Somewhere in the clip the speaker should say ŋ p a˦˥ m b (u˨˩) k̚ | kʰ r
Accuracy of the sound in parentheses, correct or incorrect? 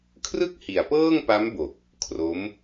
incorrect